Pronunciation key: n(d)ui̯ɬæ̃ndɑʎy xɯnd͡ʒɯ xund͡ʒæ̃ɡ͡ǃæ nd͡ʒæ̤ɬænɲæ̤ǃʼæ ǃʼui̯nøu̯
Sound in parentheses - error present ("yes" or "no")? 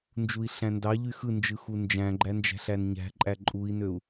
yes